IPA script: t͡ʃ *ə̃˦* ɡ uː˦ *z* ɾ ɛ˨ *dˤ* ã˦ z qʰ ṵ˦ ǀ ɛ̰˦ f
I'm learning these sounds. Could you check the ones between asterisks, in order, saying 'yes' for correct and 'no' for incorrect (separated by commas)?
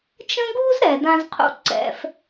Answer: yes, yes, no